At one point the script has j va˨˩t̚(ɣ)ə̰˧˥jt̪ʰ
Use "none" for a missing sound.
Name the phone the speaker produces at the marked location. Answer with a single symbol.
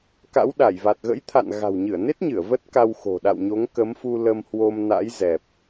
ɣ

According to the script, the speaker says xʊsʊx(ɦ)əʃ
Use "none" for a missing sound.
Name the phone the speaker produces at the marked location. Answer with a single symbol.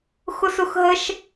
ɦ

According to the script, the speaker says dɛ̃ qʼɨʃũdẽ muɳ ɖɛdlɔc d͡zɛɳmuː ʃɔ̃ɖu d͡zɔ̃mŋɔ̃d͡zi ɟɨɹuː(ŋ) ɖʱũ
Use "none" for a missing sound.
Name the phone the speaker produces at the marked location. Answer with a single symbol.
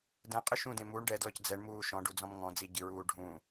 none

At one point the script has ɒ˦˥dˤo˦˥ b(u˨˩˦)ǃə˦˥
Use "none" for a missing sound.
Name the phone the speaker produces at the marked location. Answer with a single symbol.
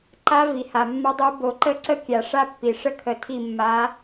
o˨˩˦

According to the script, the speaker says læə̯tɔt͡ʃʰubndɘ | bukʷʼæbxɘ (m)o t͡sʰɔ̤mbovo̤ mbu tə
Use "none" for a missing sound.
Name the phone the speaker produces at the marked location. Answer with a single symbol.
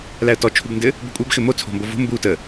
m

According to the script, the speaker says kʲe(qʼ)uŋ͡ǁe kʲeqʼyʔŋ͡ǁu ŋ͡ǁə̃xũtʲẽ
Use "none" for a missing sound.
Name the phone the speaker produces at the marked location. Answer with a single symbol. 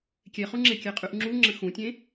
χ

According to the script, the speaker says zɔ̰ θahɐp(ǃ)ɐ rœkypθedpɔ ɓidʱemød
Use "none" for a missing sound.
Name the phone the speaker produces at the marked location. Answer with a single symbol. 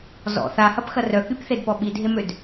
x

